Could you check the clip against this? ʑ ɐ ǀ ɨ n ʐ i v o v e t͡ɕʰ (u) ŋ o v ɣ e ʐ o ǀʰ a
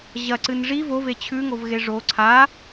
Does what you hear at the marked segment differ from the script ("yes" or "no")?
yes